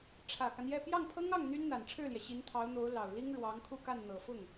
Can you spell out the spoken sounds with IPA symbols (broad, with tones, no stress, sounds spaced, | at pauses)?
ʈ͡ʂʰ ä˨˩ k a˦ n j ɛ˥˧ p j ɑ˥˩ ŋ pʰ ɤ˥ ŋ ɑ˥˩ ŋ n̪ y˥ n n̪ a˨˩ n ʈ͡ʂʰ ɻ̩˥˩ l j ɛ˩ ɕ i˧˥ n t̪ʰ ɑ˧˥ ʊ̯ n̪ o˧˥ ʊ̯ l ɑ˨˩ ʊ̯ l i˥ ŋ ɻ w ɑ˧˥ ŋ kʰ u˥˧ k a˥˩ n n̪ ɤ˨˩ f ʊ˥˩ ŋ